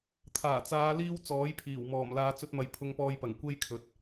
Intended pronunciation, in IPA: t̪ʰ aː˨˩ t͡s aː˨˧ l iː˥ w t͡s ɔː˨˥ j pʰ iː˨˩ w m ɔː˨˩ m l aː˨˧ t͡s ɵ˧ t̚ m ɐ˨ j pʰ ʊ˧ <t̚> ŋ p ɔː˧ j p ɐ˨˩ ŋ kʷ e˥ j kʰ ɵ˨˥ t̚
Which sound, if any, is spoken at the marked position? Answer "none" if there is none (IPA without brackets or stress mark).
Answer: none